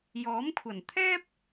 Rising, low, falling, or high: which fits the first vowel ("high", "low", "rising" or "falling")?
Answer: rising